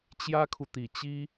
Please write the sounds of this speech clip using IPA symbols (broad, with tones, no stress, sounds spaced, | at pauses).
t͡ɕ j ä˥ kʰ u˨ t̪ i˨˩ t͡ɕ i˥